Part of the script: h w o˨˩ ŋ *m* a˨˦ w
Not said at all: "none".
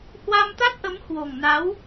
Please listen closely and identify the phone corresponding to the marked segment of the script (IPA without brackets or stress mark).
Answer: n